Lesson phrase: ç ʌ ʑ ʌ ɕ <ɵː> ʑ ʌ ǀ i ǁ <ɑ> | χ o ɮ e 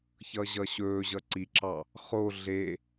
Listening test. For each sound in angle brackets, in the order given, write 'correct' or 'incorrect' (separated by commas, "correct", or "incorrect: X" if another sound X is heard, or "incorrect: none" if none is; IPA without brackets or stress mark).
correct, correct